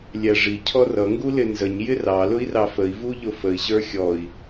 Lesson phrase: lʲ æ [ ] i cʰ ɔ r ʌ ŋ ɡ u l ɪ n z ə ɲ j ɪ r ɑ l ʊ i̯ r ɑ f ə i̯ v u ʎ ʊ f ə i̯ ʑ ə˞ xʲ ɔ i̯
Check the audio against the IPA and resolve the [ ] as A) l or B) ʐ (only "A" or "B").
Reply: B